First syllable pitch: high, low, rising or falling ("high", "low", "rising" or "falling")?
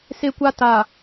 high